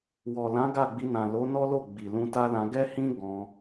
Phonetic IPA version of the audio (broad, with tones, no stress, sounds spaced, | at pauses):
w ɔ˨ l ã˨˦ ɡ a˦˨ ɡ͡b i˧ n ã˨ l o˨˦ n ɔ˦ l o˦˨ ɡ͡b i˨ l ũ˧ t a˦ l ã˧ ɡ ɛ˦ h ĩ˦ ɡ ɔ̃˧